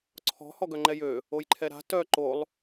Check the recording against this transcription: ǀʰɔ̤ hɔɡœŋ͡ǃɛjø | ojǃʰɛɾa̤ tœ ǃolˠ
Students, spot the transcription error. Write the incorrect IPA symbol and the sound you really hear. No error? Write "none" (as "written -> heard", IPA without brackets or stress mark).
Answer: none